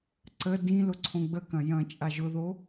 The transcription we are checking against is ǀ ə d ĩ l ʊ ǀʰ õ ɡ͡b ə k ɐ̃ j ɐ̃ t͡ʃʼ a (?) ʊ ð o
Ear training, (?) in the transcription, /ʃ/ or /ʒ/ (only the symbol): ʒ